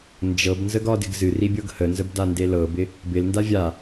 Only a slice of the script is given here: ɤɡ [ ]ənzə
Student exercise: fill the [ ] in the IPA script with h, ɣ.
h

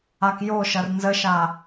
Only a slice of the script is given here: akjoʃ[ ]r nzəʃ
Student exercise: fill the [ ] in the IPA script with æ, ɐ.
ɐ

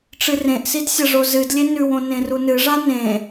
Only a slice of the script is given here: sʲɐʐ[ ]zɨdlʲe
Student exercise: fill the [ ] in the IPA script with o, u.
o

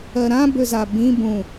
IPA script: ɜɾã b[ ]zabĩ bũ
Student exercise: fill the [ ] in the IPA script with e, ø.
ø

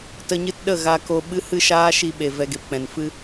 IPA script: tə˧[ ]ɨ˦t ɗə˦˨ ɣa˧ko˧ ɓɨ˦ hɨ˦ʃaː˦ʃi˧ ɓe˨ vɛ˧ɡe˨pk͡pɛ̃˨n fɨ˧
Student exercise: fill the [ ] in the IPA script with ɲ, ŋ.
ɲ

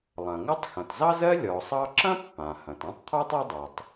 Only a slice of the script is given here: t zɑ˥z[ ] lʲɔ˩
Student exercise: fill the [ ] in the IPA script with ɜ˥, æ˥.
ɜ˥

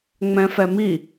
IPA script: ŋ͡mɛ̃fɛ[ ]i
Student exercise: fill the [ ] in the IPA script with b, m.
m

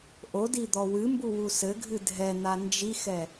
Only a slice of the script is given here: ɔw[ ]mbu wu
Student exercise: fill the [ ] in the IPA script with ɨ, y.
ɨ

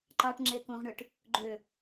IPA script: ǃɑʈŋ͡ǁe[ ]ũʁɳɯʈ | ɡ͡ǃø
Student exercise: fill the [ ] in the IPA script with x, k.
k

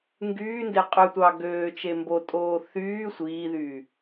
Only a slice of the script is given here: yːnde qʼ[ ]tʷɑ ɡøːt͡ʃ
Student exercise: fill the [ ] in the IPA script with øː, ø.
ø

